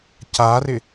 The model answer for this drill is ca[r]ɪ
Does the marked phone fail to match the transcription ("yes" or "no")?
no